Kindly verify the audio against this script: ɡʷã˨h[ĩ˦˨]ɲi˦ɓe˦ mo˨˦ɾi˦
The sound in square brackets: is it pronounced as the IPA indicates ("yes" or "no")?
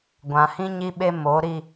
no